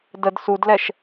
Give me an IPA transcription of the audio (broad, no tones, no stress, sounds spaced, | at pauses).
d ə d s u d l ɛ ʃ